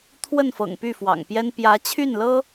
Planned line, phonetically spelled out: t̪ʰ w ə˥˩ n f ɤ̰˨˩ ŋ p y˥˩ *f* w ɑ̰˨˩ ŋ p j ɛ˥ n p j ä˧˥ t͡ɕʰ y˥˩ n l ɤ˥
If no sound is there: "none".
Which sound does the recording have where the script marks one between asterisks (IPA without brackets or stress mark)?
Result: f